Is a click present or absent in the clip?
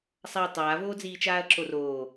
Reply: present